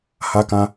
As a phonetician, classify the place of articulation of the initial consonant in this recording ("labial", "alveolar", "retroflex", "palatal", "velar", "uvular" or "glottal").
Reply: glottal